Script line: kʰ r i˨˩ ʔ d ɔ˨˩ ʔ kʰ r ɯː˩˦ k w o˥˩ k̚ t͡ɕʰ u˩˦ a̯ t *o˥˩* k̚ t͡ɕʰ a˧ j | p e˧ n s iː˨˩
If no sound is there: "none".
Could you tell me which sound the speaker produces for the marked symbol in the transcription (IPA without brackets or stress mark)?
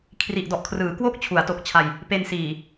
o˨˩